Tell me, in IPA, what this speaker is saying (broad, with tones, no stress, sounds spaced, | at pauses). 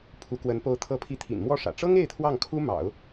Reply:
pʰ u˧˥ k w ə˧˥ n p o˧˥ ʊ̯ t̪ʰ ɤ˧˥ pʰ i˧˥ t̪ʰ ḭ˨˩ n m w ɔ˥˩ ʂ ä̰˨˩ ʈ͡ʂ ɤ˥ ŋ e˥˧ ɪ̯ t̪ʰ w ɑ˥˩ ŋ kʰ u˥ m ɑ̰˨˩˦ ʊ̯